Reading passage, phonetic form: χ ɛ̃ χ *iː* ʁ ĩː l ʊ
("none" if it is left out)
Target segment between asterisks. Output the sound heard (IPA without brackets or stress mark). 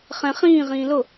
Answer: ĩː